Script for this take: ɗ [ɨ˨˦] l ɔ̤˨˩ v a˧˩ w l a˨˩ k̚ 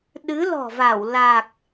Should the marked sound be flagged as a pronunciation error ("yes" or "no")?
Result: no